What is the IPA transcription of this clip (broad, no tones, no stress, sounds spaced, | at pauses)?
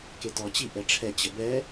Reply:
k e t ɔ t͡ɕ i ʔ ɛ ʈ͡ʂʰ ɛ t͡ɕ ə b ɛ